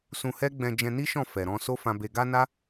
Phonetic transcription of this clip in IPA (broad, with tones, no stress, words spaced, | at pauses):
sũ˧hɛ˦ ɡ͡bɛ̃˧ d͡ʒɛ̃˧ni˦ʃɔ̃˦˨ fɛ˨ɾɔ̃˧ so˦fã˧be˧ ɡa˦na˦